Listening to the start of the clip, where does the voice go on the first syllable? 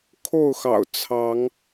falling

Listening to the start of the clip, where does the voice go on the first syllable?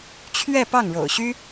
falling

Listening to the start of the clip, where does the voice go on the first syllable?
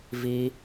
high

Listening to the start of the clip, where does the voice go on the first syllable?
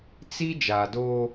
high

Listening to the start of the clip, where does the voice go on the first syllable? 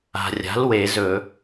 low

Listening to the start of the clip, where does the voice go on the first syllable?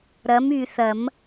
rising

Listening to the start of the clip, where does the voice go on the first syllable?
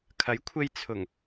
rising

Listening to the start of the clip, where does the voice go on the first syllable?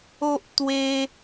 high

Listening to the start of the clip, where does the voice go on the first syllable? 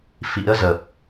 rising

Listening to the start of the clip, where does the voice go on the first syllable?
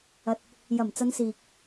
low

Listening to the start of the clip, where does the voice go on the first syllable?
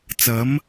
rising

